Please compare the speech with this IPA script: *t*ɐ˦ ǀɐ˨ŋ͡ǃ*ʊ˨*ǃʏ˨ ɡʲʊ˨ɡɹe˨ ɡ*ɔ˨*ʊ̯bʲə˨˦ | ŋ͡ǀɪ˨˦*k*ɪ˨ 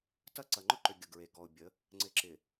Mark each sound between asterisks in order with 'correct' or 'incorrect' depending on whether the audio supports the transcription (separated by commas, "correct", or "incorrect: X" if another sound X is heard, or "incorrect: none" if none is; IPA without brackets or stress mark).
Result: correct, incorrect: ʊ˦, correct, incorrect: ǁ